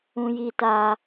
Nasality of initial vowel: nasal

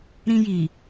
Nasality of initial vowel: nasal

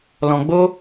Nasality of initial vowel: nasal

